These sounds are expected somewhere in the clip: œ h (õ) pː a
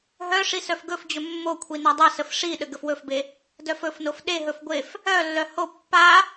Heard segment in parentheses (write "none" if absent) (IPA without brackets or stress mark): o